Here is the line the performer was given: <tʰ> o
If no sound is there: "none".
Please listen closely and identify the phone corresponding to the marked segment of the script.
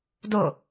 d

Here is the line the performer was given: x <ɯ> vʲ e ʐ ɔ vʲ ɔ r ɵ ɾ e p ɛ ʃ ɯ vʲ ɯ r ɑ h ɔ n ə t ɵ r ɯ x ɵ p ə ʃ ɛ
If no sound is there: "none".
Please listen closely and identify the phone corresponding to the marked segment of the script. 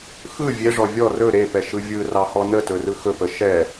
ɯ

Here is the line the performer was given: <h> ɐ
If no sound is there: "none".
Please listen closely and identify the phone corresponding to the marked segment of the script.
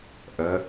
ʔ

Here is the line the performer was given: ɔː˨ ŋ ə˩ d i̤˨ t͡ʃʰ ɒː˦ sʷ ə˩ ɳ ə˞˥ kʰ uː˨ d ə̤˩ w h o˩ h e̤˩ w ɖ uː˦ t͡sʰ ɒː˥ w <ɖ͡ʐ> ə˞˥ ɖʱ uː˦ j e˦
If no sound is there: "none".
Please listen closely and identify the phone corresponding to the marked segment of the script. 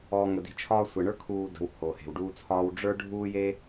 ɖ͡ʐ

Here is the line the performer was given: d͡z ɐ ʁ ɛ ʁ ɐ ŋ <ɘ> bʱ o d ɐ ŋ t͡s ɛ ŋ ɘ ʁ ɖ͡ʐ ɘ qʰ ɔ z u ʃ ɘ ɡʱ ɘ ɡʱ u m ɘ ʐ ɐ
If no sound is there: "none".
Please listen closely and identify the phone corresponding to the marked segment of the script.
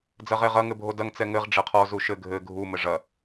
ɘ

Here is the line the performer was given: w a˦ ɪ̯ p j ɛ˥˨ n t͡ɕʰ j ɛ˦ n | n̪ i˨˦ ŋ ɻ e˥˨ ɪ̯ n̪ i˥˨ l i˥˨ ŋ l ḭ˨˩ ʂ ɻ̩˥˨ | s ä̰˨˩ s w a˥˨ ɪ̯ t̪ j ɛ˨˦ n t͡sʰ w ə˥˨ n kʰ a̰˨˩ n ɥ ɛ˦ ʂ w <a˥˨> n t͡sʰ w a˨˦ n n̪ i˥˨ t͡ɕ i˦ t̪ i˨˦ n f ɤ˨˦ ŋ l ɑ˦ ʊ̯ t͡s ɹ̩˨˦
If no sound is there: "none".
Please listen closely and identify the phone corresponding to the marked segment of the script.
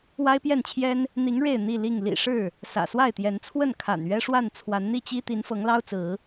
a˥˨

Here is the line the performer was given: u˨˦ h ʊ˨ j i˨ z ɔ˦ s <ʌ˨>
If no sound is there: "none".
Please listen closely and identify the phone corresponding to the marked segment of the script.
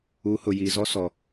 ɔ˨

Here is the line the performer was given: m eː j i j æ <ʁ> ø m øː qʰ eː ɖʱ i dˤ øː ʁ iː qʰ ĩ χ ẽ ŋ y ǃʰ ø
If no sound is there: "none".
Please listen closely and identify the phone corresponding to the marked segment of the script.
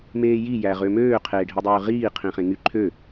ʁ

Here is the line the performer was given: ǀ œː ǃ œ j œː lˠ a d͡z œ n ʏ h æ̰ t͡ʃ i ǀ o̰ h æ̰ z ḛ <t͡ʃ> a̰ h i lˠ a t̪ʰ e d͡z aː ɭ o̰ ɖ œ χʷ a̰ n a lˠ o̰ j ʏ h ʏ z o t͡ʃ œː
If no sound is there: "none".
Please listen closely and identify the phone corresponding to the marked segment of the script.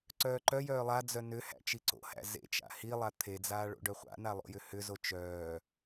t͡ʃ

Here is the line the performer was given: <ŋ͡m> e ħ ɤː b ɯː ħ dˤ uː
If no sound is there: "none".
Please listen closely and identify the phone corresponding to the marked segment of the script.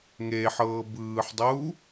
ŋ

